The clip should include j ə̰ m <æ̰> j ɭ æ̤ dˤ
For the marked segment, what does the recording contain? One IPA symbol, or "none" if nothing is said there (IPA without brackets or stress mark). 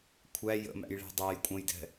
æ̰